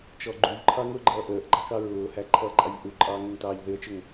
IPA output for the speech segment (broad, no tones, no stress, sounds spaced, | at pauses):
t͡ʃ ɔ ɡ͡ǃ u ʎ ǃʰ ɑ ŋ ʊː ɡ͡ǃ ʌː ʔ əː ʔ ɡ͡ǃ ɑ k ɑ ɹ ʊː h æ ǃʰ ʌː ǃʼ ɑ ʎ ʔ u ǃʼ ɑː ŋ ə ŋ t ɑː ʎ ð ɪ ə̯ t͡ʃ ʊ ŋ